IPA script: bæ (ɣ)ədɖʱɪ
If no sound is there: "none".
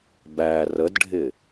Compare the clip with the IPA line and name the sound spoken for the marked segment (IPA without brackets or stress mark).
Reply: r